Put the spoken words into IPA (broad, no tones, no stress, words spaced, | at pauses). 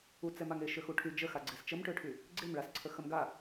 ut͡sɛmaŋe ʃøxuʈʰy d͡ʒəxaɡ͡ǀes t͡ʃəmʈøʈʰy | ɡ͡ǀemɭasǀʰə xəmɡa